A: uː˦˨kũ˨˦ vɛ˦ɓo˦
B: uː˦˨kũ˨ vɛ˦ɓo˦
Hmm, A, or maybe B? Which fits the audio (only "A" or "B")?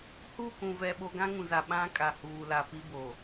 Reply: B